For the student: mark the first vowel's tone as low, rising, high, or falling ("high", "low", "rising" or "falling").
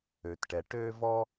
low